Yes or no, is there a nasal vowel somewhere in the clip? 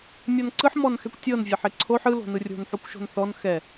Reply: no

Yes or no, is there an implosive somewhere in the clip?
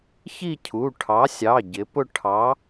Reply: no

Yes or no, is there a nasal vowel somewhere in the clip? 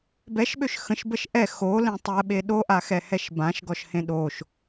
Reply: yes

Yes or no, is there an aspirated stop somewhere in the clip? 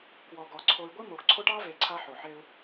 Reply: yes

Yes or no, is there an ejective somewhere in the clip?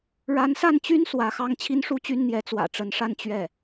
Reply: no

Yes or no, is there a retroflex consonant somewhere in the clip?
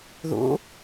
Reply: no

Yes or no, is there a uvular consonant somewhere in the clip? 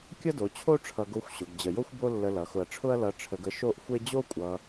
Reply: no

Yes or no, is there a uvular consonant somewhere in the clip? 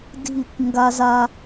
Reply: no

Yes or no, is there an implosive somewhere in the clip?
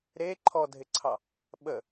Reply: yes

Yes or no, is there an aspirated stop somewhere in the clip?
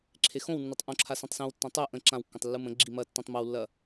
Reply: yes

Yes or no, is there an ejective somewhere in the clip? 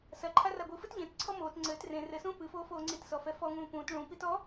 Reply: no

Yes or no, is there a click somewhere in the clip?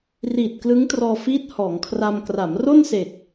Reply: no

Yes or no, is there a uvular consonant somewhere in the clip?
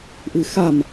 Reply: no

